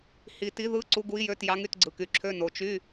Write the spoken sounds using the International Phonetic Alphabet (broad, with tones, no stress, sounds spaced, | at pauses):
h i˨ t i˧˥ ð ɯ˧˥˧ ǀ u˧˥ ɡ u˧˥ i̯ j ø˧˥˧ t j ɑ˧˥ ŋ y˧˥˧ t ɡ͡ǀ ɯ˨ k y˨ ǁʰ ø˧˥˧ n o˨ t͡ʃ y˧˥˧